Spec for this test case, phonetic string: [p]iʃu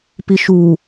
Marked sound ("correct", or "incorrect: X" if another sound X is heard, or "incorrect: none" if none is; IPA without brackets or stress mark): correct